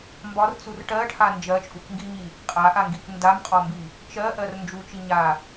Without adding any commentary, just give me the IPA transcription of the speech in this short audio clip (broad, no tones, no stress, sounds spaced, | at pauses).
m b ɒ r t͡s u r ʈ ɜ ʈʰ a n d͡ʒ ɜ t͡ʃʼ u k ŋ ɡ i ɲ i | qʼ a ʔ a ŋ ɡ i k n d a m qʼ ɒ m b i | t͡ʃ ɜ ʔ ɜ r n d͡ʒ u t͡ʃ i ɲ a